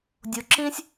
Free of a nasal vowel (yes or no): no